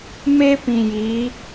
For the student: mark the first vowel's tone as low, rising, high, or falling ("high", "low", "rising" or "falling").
high